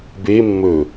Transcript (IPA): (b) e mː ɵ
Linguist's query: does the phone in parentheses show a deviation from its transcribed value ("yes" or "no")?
no